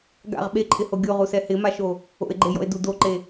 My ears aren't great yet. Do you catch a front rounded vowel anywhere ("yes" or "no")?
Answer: no